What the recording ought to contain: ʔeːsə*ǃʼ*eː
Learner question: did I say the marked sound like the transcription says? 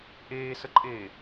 yes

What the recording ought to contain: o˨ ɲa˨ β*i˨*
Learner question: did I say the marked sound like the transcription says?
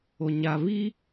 no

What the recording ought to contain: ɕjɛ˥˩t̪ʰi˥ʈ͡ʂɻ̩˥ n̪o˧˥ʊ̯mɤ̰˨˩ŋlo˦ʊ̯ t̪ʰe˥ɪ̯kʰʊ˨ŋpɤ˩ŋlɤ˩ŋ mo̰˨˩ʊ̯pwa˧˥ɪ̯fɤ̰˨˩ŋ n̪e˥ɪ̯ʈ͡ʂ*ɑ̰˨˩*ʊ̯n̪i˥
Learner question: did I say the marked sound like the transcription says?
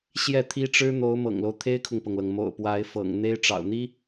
yes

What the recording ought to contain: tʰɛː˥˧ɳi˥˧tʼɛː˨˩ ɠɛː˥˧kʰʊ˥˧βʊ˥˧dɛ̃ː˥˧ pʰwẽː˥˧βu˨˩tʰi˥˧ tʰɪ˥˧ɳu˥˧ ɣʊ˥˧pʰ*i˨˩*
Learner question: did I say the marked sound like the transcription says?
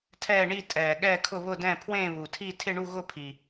yes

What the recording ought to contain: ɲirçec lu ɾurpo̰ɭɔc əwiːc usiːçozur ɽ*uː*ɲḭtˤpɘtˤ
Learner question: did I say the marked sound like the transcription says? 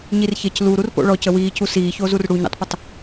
no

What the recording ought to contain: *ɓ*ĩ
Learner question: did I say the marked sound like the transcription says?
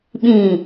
yes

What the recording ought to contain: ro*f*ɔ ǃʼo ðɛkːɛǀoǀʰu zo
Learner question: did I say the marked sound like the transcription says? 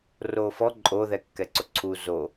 yes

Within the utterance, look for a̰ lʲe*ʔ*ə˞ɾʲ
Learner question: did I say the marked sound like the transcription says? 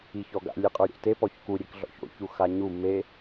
no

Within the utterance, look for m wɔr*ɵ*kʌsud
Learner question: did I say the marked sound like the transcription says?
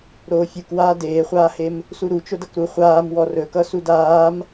yes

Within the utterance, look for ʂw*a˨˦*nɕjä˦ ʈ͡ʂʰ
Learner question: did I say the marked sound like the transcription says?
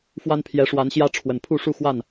yes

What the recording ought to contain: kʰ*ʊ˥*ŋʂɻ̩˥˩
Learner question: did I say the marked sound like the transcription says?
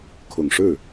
no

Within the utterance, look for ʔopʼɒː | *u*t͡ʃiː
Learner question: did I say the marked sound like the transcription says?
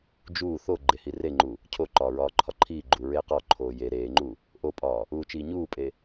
no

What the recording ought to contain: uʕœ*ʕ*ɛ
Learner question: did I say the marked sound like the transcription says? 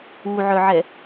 yes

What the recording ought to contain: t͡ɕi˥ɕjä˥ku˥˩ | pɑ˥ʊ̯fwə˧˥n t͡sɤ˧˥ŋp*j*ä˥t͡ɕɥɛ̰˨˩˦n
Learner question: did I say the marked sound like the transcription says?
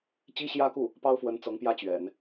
yes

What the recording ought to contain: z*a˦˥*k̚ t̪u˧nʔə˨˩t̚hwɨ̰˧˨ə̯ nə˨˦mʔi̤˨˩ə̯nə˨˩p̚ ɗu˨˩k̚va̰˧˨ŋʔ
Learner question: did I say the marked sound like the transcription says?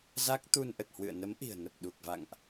yes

